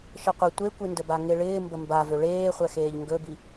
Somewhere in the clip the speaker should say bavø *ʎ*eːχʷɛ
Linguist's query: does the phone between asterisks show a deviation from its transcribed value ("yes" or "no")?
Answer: yes